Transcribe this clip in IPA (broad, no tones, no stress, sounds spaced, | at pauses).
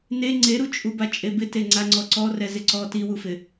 n e ŋ͡ǀ e ɾ u t͡ʃʼ u b a t͡ʃʼ e b ɪ t e ŋ͡ǀ a ŋ͡ǀ ɔ ǀ ɔ r ɛ z ɪ ǀ ɔ t i w u f ɪ